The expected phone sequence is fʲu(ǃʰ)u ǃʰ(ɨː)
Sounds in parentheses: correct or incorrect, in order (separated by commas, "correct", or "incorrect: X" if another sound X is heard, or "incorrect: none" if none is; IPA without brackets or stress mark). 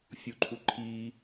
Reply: correct, incorrect: iː